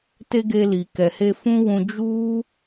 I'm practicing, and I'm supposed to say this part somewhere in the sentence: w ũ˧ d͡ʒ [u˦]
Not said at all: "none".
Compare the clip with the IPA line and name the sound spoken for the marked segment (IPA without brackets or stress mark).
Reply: u˦